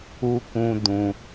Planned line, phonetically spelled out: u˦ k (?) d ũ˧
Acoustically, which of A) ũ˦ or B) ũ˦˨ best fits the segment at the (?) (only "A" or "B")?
A